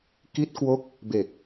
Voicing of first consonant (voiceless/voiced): voiceless